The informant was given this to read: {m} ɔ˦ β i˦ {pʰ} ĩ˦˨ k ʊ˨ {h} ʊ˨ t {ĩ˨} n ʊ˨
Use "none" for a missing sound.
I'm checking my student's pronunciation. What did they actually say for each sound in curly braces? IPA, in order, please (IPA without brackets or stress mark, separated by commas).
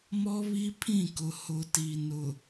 m, pʰ, h, i˨